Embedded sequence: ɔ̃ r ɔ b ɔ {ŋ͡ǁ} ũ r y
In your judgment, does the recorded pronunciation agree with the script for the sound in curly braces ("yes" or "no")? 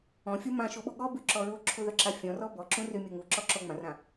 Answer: no